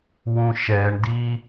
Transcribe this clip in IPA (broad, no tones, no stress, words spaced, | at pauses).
wũʃɛɳdi